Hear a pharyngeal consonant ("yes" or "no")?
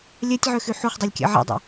yes